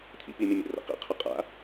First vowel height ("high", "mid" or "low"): high